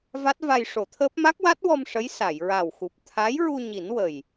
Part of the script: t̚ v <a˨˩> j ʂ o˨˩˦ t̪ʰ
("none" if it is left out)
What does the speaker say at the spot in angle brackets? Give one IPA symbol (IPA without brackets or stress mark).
a˧